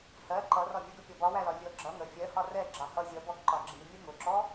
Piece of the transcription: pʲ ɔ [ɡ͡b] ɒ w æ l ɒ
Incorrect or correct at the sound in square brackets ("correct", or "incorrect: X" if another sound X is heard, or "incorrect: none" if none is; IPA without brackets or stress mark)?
incorrect: b